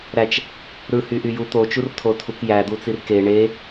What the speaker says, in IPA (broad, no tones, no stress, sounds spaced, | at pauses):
ɾ æ t͡ʃ | ɾ ɯ h y ʔ y j u t̪ o t͡ʃ u r tʰ o tʰ u k j æ d̪ u t͡s i r k e ɳ e